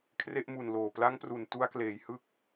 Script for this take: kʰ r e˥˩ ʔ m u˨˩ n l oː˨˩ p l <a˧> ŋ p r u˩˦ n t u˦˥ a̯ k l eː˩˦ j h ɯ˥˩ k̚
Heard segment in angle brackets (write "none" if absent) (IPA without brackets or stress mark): a˦˥